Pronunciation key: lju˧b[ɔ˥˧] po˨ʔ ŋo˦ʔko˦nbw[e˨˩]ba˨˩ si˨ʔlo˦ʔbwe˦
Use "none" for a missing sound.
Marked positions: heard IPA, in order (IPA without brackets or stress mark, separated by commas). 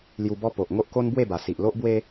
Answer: ɔ˦, e˥˧